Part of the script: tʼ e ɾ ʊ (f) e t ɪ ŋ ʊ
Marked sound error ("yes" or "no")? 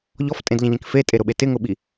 yes